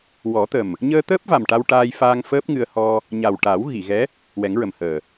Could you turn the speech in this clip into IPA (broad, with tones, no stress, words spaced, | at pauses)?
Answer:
wɔ˨˩˦t̪ə˨˩m | ɲəː˧ t̪əː˦˥p̚va˨˩m ʈa˧wʈaː˧jfaː˧ŋ fəː˦˥p̚ŋɨ˧ə̯ hɔ˧ | ɲa˨˩wʈa˨˩˦w ɣi˨˩˨ɣɛ˧˥ | wɛ˨˩˦ŋɹə˨˩mhəː˨˩